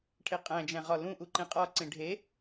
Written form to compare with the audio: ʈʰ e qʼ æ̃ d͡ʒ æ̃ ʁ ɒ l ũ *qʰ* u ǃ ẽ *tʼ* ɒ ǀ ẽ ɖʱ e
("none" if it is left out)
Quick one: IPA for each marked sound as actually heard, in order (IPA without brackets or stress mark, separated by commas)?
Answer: ʔ, qʼ